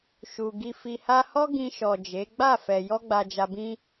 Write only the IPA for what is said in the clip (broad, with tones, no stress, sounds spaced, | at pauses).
ʃ u˨ ɡ i˨ f i˨ h a˧ h ɔ˦ ɡ ĩ˧ ʃ ɔ˨ d͡ʒ e˨˦ ɡ͡b a˦˨ f ɛ˨ j ɔ˧ ɡ͡b a˨ d͡ʒ a˨ b ĩ˧